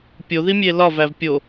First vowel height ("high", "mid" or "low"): mid